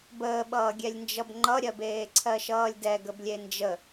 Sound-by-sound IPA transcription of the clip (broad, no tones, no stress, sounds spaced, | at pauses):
b əː ɓ ʌː ɡʲ ɛ lʲ n d͡ʒ ʌ b ŋ͡ǃ ʌ ɾʲ ɜ b eː ǀʰ ɜ ʃ ʌː lʲ d ɛ ɡ ə b lʲ e n d͡ʒ ə